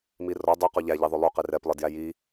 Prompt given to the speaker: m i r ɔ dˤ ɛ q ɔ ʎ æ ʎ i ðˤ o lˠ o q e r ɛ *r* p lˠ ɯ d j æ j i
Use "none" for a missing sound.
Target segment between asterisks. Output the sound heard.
none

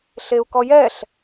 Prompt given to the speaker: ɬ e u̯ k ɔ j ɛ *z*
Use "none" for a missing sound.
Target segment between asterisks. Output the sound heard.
ɬ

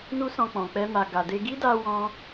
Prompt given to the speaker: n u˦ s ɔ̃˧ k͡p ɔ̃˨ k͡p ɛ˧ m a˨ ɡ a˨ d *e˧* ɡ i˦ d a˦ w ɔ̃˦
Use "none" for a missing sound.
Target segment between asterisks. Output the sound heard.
e˧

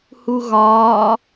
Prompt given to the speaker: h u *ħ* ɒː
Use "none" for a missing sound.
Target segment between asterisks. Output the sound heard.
ɣ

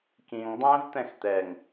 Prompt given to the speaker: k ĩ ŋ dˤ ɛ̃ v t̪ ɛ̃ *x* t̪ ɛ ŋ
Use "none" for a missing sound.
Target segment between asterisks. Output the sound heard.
x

